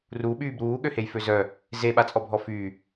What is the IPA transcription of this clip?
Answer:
ru ɓyːbɾuː ɠøhejføzœ | ze ɓat͡sʼɔbʱɔfyː

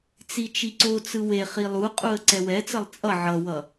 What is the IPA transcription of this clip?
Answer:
t͡sit͡ʃiǀot͡sɯ we χilˠuqʼuə̯ ǀɛwɛt͡sʌlˠ t͡sʼʌ ʕʌwʌ

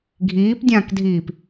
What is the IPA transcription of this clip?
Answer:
ɡʱiːpdʲãːkdʱiːp

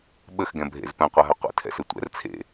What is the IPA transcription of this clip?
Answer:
ɓəxɡɛ̃bʱḛz pɛ̃qʷaɦœ qʷɛ̰tʰɛ̰sø tʷɛ̰r t͡sʰḛ

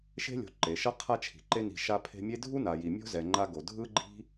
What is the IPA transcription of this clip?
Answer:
ʃe̤˥lʲo̤˨ ǃe˩ʃʌ˦ qʰa˦t͡ʃʰi̤˩ǃe˦ni̤˨ ʃa˦pʰe̤˦mʲe˥ dʱu˥na˨ji˨ mʲo̤˥zɛ˨ ŋ͡ǃa˥ɡo˨ dʱɯ˥ɡ͡ǃi̤˥

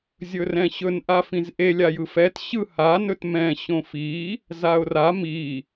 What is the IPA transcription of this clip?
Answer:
zʲɵrɛ̃ɕɵn ʔafĩzʔe lʲajɯfɛt ɕɯ ha nɵtmɛ̃ ɕõfi | zaʊ̯ra mi

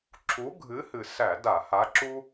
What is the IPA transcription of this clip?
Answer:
ǁʰu˨˥ɡʱɨ˨˥hɨ˨˩sæ˧˩˧ da˧˩˧ha˨˥ǁu˥

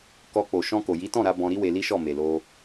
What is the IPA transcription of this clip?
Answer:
kɔ˧ k͡po˨ ʃɔ̃˧ko˨ji˨˦tɔ̃˦˨ ɾa˨˦bɔ̃˧ ɾi˦we˧li˦ʃɔ˦˨ me˨lo˧

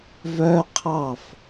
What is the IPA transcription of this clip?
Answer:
vœ qʰɑf

